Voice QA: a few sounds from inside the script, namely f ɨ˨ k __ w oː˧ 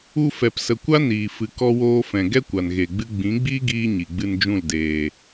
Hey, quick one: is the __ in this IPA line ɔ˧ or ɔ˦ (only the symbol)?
ɔ˧